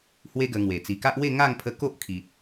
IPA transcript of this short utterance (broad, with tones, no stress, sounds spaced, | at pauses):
h w e˦ ɡ ə˧ ŋ w e˨˩ t͡s i˨˩ k a˦ ʔ w e˥˧ ŋ a˥˧ ŋ pʰ ə˧ k o˦ ʔ kʰ i˨ t̚